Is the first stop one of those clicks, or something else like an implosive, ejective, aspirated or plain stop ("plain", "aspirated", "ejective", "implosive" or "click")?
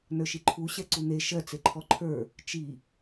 click